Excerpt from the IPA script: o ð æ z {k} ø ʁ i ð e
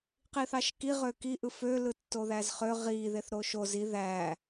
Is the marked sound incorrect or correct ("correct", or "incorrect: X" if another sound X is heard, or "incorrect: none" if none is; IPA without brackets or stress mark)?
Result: incorrect: χ